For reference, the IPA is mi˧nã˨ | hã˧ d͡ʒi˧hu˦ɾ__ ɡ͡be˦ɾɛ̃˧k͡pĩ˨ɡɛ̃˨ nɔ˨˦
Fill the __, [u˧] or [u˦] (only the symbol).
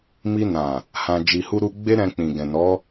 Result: u˦